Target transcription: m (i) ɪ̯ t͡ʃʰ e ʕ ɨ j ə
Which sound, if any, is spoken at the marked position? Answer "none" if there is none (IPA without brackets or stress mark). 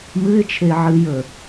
ɨ